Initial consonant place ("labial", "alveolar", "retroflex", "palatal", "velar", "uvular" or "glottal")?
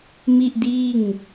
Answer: labial